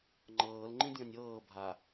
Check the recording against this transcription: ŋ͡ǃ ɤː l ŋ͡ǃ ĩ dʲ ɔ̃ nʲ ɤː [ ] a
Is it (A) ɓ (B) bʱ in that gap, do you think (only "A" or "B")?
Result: B